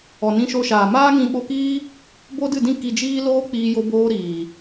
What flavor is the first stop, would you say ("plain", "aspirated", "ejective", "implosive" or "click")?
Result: implosive